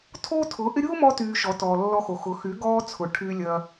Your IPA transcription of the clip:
tʰ o˦ tʰ ʊ˨˦ ʔ ɪ˦ ɾʲ o˦ m ɔ˧ t yː˧ ʃ ɔ˨˦ t ɔː˨ lː ɔ˧ x o˨ x ʊ˨˦ x y˨˦ ɡ ɔː˧ t͡sʰ ʊ˨ ʈʰ y˧ lʲ ɐ˧

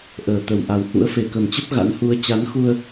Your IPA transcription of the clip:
ʔ əː˨˩ t̪ ə˨˩ w ʔ a˨˩ w h ṵ˧˥ ə̯ f e˨˩ k ə˨˩ m t͡ɕ ə˦˥ p̚ ɣ a̰˧˥ n h u˨˦ ə̯ t͡ɕ a˨˦ n x u˧ ə̯

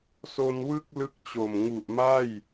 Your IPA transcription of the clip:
s o˧ n w ɯ˥˩ k̚ l ɯ˦˥ k̚ t͡ɕ o˨˩ m ŋ u˨˩ ʔ m a˥˩ j

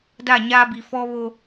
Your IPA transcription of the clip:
d a˦˨ ɲ aː˦ b i˨ f ɔ˦ β o˦

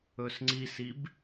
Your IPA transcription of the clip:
ɵ s ŋ͡ǀ i s i b

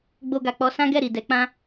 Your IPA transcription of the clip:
ɡ͡b o˧ ɡ a˨ k͡p ɔ˧ s ã˦ ɡ ɛ˦˨ ɾ i˨ d ɛ˨˦ k͡p ã˦

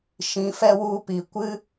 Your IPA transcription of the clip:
ʃ ĩ˨˦ f ɛ˦ w u˦˨ p i˨ kʷ ɨ˦

